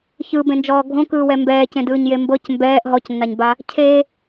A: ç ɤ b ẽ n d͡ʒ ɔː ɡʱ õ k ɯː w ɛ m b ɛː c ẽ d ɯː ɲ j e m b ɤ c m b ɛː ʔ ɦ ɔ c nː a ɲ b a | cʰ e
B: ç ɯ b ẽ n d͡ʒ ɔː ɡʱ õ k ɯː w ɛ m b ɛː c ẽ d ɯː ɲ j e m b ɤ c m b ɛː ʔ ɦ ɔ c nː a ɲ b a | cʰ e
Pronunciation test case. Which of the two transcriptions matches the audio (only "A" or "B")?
B